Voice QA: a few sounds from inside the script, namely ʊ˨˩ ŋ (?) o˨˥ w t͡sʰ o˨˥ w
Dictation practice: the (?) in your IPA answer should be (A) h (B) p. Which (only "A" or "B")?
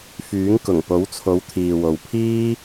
B